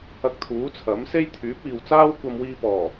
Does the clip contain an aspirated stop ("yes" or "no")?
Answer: yes